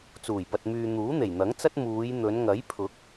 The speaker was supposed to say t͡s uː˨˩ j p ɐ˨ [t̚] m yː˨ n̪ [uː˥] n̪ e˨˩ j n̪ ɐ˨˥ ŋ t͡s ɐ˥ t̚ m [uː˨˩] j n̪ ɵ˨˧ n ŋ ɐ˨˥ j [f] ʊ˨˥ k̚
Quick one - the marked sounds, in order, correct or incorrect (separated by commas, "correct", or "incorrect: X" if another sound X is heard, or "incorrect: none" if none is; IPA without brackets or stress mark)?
correct, incorrect: uː˨˥, incorrect: uː˨˧, incorrect: pʰ